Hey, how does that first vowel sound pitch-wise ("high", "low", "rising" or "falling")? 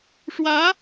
rising